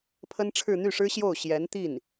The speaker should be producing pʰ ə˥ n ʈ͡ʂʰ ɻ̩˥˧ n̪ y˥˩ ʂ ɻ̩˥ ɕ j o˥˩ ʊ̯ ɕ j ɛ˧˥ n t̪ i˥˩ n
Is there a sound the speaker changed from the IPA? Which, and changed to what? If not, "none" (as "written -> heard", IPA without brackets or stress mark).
none